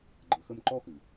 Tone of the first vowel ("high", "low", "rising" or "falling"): low